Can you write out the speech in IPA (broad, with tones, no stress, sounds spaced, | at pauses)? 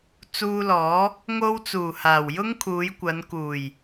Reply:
t͡s uː˧ l ɔː˨˥ | ŋ o˥ w t͡s uː˨˩ h aː˨˩ w j ʊ˥ ŋ kʰ uː˨˧ j kʷ ɐ˨˧ n k uː˨˩ j